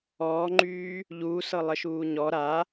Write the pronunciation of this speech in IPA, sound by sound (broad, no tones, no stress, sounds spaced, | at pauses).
ɔː ŋ͡ǃ yː | ʎ uː s ɤ lˠ ə ʃ uː ɲ ɔ ɾ a